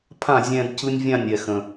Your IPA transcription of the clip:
pʰ ã˥˩ zʲ ɛ̃ː˧ d c ɯ˧ nʲ vʲ ã˥˩ nʲ ɛ˩ x ə̃˩

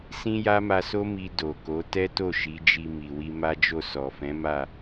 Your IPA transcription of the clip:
s ĩ˦ j a˦ m a˧ s o˦ m i˧ d o˨ k o˨˦ t ɛ˦ t o˦˨ ʃ i˨˦ d͡ʒ i˧ m i˨ w i˧ m a˦ d͡ʒ o˦˨ s ɔ˨ f ɛ̃˨˦ m a˦˨

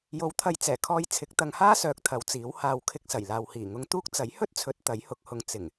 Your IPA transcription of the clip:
j o˨˥ w t̪ʰ ɐ˨ j t͡s ɛː˨˩ kʰ ɔː˧ j t͡sʰ ɪ˨˥ k̚ t̪ ɐ˨˧ ŋ h aː˥ s œː˨ k̚ t̪ʰ ɐ˨˧ w t͡s iː˨˥ w h aː˨˧ w kʰ ɪ˧ k̚ s ɐ˨˩ j l aː˨ w h iː˨˩ ŋ ʊ˧ ŋ t̪ uː˥ k̚ t͡s ɐ˨˥ j h ɵ˥ t̚ t͡sʰ ɵ˨˥ t̚ t̪ ɐ˨˥ j h ʊ˨˥ k̚ h ʊ˨ ŋ t͡s ɪ˨˩ ŋ

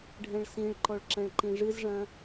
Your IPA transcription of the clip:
ɖʱ ɛ̃ ɭ s ĩ ɭ ǃ ɔ ɭ ǁ ɛ̃ ɭ ǃ ĩ ʐ ɨ z ʐ ɐ̃

